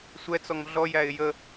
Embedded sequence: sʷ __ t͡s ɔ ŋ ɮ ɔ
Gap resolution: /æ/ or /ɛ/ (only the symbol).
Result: ɛ